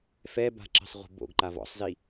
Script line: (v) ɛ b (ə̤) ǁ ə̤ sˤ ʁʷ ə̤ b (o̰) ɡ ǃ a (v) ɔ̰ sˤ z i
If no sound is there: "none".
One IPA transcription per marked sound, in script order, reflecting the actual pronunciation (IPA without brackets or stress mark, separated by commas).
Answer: f, a̤, o̰, v